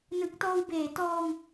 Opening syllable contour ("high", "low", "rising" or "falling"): low